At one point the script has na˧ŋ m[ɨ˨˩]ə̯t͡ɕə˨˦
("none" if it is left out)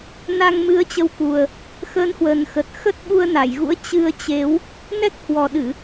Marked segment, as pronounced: ɨ˨˦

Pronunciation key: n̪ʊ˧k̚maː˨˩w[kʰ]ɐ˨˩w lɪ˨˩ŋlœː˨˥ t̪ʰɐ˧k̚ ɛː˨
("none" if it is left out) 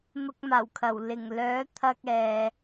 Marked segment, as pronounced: kʰ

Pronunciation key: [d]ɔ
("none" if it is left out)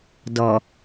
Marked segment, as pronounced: d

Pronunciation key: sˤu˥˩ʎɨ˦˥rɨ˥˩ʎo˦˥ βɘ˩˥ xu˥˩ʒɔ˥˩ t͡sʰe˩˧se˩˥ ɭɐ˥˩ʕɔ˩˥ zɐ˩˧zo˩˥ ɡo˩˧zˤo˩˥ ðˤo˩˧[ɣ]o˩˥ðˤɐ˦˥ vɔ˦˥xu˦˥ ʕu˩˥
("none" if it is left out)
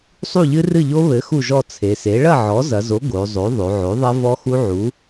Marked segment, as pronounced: ʕ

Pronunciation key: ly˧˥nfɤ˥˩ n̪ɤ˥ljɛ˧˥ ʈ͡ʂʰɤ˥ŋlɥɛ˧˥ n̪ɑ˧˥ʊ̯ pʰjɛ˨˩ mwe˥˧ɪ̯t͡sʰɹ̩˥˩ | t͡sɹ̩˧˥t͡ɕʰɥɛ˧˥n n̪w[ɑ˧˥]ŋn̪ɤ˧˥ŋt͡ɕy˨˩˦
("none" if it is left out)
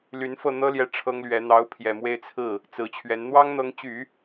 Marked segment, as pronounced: ɑ˥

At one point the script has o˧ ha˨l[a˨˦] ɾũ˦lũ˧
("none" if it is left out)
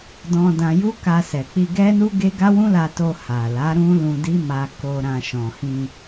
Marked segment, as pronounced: a˨˦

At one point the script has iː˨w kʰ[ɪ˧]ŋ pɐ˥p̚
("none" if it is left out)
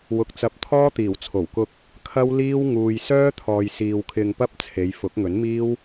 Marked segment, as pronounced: ɪ˧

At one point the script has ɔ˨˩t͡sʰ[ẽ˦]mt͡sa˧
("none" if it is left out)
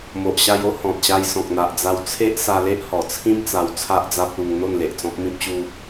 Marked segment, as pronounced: ĩ˦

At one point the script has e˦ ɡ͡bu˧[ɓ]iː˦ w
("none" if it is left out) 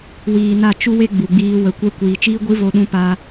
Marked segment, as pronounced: ɡ͡b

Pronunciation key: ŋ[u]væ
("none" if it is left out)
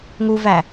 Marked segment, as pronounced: u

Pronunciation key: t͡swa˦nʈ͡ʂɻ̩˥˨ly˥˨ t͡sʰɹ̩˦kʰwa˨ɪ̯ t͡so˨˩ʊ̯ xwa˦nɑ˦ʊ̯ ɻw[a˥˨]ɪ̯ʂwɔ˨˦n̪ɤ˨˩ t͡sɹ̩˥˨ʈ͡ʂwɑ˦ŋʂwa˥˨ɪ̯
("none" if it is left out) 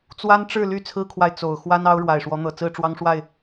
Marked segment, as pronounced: a˨˩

